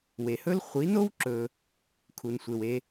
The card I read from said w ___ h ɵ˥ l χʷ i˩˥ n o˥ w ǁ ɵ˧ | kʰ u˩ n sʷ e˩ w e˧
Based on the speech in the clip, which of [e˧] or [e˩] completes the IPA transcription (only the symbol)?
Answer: e˩